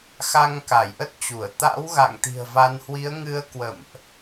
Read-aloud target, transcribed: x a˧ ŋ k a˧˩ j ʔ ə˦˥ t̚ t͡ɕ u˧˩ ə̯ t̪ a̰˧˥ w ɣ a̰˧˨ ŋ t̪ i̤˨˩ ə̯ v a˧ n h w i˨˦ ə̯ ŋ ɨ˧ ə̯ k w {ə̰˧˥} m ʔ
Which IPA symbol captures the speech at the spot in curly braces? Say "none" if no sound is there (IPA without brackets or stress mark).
ə̰˧˨